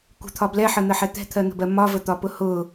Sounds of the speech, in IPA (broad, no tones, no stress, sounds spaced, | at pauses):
kʷ ə̤ t̪ʰ ɒ b l ɛ ħ ə n̪ ə ħ ɛ t̪ ɛ̤ t̪ʰ ɜ n̪ ə̤ b ɜ m ɒ v ə t̪ ɒ p ʊ h ʊ